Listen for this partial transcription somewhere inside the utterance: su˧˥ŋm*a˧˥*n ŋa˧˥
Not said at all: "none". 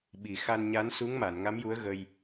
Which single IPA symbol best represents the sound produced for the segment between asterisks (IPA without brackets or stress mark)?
a˨˩˨